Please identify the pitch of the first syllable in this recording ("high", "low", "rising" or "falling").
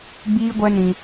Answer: high